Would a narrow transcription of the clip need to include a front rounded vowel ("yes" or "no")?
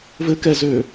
yes